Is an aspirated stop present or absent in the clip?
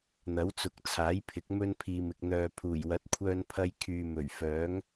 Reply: present